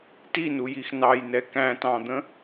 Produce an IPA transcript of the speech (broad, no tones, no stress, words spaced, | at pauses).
tinujix nɑjnɛ kæ̃tɑ̃d̪ə̃